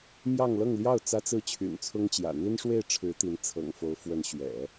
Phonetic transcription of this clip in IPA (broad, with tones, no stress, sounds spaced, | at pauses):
m j ɑ˥˧ ŋ l ɤ˥˧ ŋ l j ɑ˥˩ ʊ̯ t͡s ä˥ t͡s ɹ̩˥˩ t͡ɕʰ y̰˨˩ n t͡sʰ ʊ˥ ŋ t͡ɕ j ä̰˨˩ n̪ i˥ n ʂ w e˥˩ ɪ̯ ʈ͡ʂʰ ɻ̩˧˥ t̪ i˧˥ n t͡sʰ ɤ̰˨˩ ŋ f o˧˥ ʊ̯ f w ə˧˥ n ɕ ɥ ɛ̰˨˩˦